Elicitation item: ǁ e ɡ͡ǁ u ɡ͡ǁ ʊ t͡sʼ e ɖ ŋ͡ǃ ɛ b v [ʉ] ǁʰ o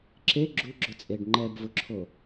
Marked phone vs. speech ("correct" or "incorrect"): incorrect